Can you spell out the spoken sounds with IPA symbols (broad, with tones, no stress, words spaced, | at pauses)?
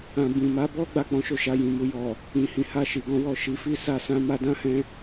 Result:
ã˨ bĩ˨ma˨˦bɔ˦ ɡ͡ba˦˨k͡pɔ̃˨˦ʃo˦˨ ʃa˧jĩ˨mu˧ jɔ˨ | ĩ˨hĩ˨˦ha˦˨ʃi˨ ɡɔ̃˧wɔ˨ ʃi˨˦fi˦ sa˦ sã˦ma˦ dã˦hɛ̃˧